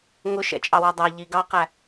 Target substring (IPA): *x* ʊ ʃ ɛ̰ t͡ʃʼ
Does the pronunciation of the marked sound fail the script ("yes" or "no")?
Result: yes